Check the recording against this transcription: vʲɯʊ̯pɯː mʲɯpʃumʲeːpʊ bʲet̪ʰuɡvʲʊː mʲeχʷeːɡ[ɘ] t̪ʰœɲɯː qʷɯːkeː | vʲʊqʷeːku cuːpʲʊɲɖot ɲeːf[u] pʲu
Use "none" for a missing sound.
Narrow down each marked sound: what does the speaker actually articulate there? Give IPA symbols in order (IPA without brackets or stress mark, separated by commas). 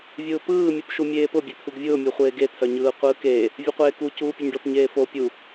e, o